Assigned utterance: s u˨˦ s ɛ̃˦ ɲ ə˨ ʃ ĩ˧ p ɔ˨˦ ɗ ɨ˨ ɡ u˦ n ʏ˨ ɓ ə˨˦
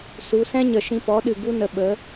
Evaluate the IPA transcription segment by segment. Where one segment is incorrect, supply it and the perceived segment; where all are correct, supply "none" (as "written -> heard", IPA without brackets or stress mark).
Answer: ʏ˨ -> ə˨